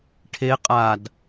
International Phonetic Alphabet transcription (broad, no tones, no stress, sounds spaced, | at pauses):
ʈʰ e qʼ a d